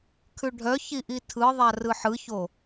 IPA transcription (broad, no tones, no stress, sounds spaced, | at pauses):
kʰ ʉ ɖʱ œ ç i ʔ i tʰ ɯ ðˤ a r ɯ ħ ɯ ç o